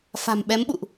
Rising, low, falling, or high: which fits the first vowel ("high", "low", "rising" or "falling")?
low